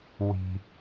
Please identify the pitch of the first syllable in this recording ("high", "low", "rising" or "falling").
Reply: low